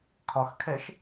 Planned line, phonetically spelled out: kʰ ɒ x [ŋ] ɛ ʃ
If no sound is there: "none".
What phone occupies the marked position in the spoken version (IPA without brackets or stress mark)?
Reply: kʰ